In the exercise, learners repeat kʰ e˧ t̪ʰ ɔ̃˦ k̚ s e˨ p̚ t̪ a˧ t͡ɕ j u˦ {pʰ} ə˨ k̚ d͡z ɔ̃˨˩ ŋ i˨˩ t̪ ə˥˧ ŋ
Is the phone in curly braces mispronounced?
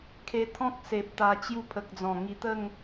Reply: no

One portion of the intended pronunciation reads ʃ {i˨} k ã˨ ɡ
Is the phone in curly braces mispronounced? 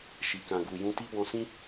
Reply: no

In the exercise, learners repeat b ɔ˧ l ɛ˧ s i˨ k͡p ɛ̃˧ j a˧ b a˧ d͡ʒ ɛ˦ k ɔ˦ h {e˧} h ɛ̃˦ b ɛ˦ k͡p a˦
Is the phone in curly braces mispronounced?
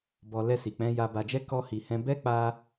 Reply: yes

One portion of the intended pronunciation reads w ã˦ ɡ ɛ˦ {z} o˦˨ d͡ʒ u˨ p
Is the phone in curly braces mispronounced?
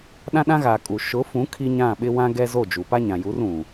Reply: no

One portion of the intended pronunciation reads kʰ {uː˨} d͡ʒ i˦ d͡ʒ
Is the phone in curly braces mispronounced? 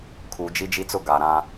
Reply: no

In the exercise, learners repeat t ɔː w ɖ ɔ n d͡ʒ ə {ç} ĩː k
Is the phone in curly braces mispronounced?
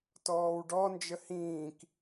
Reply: yes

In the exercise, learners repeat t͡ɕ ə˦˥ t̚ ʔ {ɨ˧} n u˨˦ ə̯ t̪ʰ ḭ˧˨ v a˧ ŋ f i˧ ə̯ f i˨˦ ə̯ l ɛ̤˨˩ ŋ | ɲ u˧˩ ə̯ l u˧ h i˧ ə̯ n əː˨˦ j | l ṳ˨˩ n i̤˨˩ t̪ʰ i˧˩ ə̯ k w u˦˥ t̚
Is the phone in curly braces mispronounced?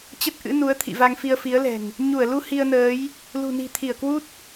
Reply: yes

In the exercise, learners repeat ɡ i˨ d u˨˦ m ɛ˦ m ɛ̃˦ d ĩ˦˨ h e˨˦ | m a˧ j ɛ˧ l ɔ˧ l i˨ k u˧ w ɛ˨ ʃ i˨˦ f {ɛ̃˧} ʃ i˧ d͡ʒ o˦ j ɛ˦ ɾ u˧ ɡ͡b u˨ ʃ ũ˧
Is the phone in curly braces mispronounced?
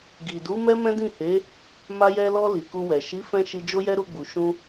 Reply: no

